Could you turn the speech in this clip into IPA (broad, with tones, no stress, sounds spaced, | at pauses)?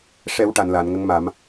ʂ ɛ˨˩˦ w ʈ a˨˩˨ n l aː˨˩˨ n ŋ ə˧˥ ŋ m a˨˩˦ m